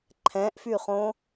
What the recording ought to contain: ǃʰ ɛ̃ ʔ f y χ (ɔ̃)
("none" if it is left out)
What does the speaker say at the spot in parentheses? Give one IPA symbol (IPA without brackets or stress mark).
õ